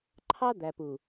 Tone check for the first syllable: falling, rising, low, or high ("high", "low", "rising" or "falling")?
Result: high